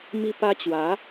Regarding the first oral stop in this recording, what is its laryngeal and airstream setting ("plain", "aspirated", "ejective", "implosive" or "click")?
plain